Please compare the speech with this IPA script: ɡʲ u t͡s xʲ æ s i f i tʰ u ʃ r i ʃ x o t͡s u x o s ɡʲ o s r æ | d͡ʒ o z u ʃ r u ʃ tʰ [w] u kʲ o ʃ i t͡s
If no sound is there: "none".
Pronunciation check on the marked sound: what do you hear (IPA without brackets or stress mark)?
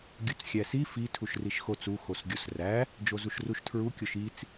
ɹ